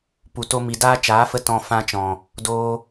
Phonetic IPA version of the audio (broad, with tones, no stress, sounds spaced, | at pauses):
p u˨ t o˧ m i˨ d aː˦ t͡ʃ aː˨˦ f ə˧ t ɔ̃˨ f ã˧ t͡ʃ ɔ̃˨ | d oː˧